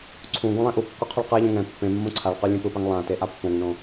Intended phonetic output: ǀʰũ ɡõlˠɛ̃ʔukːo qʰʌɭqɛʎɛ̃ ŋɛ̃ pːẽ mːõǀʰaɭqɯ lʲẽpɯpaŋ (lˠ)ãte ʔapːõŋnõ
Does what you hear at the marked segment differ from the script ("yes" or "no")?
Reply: no